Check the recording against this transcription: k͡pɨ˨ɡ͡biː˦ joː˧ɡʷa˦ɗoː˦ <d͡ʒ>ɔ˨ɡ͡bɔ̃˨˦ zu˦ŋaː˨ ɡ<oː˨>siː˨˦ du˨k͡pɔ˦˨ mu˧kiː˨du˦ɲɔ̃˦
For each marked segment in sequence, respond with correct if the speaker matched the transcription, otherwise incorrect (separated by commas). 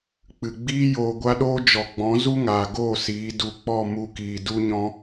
correct, incorrect